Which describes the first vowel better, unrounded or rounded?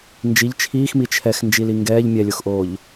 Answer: unrounded